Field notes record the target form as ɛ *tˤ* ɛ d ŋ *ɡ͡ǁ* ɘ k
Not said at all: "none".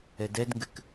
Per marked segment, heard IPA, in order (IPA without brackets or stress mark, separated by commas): d, ɡ